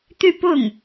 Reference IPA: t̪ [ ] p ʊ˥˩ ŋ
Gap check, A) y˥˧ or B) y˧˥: A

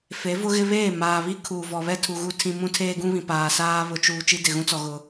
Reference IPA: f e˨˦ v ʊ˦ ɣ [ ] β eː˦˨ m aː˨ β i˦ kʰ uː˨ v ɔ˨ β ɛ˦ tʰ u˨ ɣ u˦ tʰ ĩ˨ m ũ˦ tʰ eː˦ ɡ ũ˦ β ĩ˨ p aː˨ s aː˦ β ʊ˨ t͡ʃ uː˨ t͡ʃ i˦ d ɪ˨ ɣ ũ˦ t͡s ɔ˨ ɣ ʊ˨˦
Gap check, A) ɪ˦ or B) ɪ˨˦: A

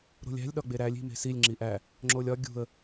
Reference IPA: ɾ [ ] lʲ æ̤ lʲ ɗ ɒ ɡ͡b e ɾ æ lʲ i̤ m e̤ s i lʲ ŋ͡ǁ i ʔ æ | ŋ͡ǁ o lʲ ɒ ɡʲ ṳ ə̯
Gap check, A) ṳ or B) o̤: B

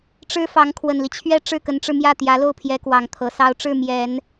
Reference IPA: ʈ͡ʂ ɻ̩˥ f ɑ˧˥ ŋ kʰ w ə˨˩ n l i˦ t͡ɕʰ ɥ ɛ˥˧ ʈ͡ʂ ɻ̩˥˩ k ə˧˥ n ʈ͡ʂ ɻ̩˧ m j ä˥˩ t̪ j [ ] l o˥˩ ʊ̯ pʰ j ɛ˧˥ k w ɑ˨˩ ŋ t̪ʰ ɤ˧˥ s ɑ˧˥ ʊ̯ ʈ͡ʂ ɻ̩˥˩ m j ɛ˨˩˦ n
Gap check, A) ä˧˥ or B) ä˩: A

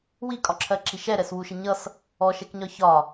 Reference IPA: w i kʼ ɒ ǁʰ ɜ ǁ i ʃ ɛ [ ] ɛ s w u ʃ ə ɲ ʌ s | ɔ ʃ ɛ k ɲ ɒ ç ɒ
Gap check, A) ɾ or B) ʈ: A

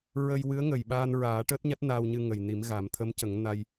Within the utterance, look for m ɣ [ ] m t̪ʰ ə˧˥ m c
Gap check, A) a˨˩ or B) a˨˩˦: B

